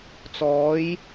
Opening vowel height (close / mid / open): mid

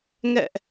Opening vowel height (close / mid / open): mid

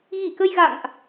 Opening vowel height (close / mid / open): close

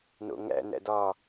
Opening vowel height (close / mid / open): mid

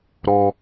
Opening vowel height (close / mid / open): mid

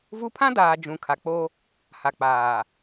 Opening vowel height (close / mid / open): close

